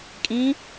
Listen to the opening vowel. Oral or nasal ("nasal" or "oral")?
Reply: nasal